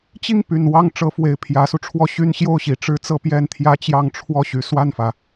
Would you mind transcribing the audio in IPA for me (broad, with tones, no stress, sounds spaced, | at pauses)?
t͡ɕ i˥˩ ŋ p y˨˩ n w ɑ˥˩ ŋ ʈ͡ʂ ɤ˧˥ f w e˨˩ ɪ̯ pʰ j ä˧˥ s u˧ ʈ͡ʂʰ w ɔ˥ ɕ y˥ n ɕ j o˥˩ ʊ̯ ɕ i˨˩ ʈ͡ʂ ɻ̩˥ t͡s ɤ˥˧ p j ɛ˥˩ n t̪ʰ j ä˥ t͡ɕ j ɑ˥˧ ŋ ʈ͡ʂʰ w ɔ˥˩ ɕ y˧˥ s w a˥˩ n f ä˩